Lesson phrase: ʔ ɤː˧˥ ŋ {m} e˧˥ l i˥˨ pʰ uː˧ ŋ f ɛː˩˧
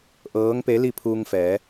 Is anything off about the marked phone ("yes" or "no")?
yes